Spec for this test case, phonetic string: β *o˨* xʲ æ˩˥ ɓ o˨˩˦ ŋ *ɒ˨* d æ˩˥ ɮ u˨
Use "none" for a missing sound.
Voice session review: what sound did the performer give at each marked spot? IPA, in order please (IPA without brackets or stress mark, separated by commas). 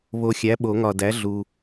o˨, ɒ˨